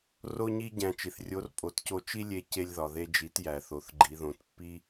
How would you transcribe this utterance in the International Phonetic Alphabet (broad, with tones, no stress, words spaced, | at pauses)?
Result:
ro˥ɲi˥ ɟæ̃˧t͡ʃi˩θrʲo˧˥r pʼo˩˧tco˧ t͡ʃi˥lʲe˧ ce˧lʲðɒ˩ðe˧d͡ʒi˩˧t jæ˩θo˩˧θ ɡ͡ǃi˩˧ðõ˩˧tpːi˥